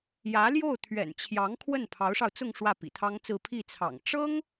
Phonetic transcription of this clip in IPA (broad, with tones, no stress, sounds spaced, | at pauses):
j ä˧˥ l j o˥˩ ʊ̯ t̪ʰ ɥ ɛ̰˨˩ n t͡ɕʰ j ɑ˧˥ ŋ kʰ w ə˥˩ n pʰ ɑ˧˥ ʊ̯ ʂ ɑ˧ ʊ̯ t͡s ʊ˥˧ ŋ ʂ w ä˥˩ p ḭ˨˩ t̪ʰ ɑ˥ ŋ t͡s ɹ̩˥˧ pʰ i˥˩ t͡sʰ ɑ̰˨˩ ŋ ʈ͡ʂ ɤ˥ ŋ